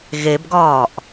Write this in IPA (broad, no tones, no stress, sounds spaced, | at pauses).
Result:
ɣ e b ɡ ɒː ʔ